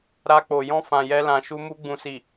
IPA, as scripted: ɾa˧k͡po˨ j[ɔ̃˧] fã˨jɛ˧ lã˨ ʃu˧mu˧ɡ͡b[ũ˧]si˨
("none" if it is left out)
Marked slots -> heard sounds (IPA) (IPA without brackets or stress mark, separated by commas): ɔ̃˧, ũ˨